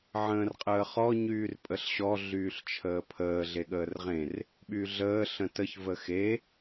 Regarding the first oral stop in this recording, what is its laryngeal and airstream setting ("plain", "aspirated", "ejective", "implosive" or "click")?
ejective